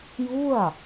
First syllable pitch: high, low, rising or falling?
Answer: falling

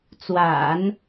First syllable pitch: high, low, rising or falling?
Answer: low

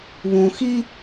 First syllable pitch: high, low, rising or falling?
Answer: low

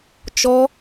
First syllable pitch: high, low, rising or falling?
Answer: high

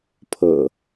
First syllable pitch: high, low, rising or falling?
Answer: low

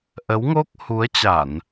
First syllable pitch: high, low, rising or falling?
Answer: rising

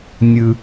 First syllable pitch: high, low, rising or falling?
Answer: low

